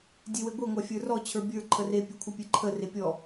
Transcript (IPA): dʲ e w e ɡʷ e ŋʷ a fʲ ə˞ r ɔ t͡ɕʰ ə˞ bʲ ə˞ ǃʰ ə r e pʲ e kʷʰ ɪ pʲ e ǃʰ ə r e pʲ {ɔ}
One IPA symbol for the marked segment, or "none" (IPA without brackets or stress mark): ɔ